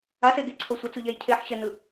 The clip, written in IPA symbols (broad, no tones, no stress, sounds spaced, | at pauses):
a s e ɡ e ǀʰ o sʷ ʌ t͡s u ʎ ɛ j cʰ e ħ ɕ ɛ n ɯ